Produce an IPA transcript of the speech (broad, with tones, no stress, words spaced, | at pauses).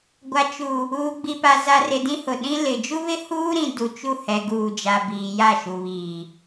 ɡʷa˨ t͡ʃu˨ | uː˨ɡ͡bi˨pa˨ za˨rɪ˨ dĩ˦hʊ˨ ɗĩ˦ lɪ˨ d͡ʒu˦βɪ˦huː˦ɾĩ˨ du˨t͡ʃu˦˨ hɛ˨ɡuː˨d͡ʒa˨ biː˨ja˦˨ʃu˨βiː˨